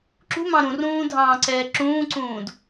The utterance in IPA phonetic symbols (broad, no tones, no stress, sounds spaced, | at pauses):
ǁ ṳ m ɑ̃ ɾ ũ r ũː dʱ ɑ̃ː ǀ ɛː ǁ ũː ǀ ũː d